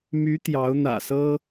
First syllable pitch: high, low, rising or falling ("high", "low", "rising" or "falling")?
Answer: rising